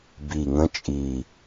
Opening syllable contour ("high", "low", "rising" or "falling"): low